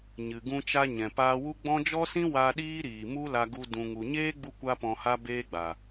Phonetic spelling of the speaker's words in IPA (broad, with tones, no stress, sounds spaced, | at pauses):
ɲ ɨ˨ ɡ ũ˧ t͡ʃ a˧ ɲ ɛ̃˨ p aː˧ w u˦ ɡ͡b ɔ̃˦ d͡ʒ ɔ˦ s ĩ˦ w a˧ ɗ iː˦ ɾ iː˨ m u˦ l a˧ ɡ u˧ d ũ˨ ŋ u˨ ɲ eː˦ ɡ͡b u˧ kʷ a˦ p ɔ̃˧ h a˦ b eː˦ ɡ͡b a˨